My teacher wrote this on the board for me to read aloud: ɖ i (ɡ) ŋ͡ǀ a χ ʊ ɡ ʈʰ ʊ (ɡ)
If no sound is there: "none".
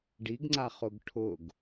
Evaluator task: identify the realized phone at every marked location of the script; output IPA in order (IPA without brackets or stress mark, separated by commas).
ɡ, ɡ